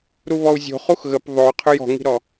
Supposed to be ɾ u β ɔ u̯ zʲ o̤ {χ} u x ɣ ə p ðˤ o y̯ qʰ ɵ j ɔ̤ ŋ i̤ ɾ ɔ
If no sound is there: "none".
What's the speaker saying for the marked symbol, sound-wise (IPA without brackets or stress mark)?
χ